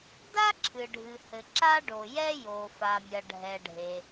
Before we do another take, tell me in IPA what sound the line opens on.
d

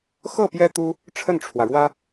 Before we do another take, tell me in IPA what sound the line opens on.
x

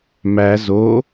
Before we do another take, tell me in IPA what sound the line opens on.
m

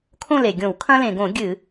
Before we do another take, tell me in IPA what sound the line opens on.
kʰ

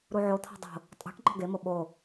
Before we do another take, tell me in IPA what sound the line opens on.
ɾ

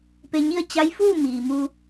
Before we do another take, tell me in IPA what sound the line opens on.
p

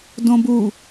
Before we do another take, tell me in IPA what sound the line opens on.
d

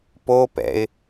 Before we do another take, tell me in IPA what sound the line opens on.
p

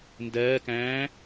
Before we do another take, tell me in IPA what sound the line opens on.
n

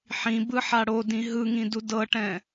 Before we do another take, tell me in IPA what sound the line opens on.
ħ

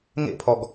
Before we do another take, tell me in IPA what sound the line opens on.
ŋ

